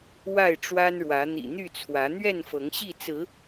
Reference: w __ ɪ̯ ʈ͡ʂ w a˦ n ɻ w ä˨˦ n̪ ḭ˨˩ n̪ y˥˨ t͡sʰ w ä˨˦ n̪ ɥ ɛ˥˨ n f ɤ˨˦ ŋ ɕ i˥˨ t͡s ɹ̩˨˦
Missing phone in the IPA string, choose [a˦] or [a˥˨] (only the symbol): a˥˨